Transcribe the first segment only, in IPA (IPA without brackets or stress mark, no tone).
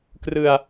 k